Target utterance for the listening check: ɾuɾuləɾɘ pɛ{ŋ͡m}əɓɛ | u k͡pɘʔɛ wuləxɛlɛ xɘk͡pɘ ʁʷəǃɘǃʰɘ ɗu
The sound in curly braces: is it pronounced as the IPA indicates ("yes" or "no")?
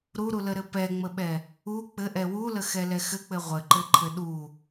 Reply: yes